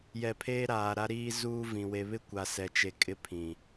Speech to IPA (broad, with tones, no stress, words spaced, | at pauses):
jɛ˨ pʰeː˦ɾaː˨ɾa˦ɾiː˦ zuː˦vĩ˨ we˨βɪ˦ kʷa˨sɛ˨t͡ʃe˨ kʼɪ˦pʰĩ˨